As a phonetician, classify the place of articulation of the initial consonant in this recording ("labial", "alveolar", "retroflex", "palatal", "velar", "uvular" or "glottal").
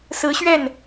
alveolar